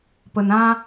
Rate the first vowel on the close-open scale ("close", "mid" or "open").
mid